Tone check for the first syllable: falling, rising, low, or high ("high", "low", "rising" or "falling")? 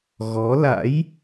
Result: rising